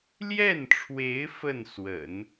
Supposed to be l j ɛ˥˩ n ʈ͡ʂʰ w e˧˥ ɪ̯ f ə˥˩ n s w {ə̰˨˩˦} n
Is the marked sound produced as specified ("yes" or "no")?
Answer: yes